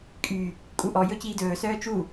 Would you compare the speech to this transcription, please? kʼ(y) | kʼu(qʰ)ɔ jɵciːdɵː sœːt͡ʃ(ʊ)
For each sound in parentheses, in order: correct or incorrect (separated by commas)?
correct, incorrect, incorrect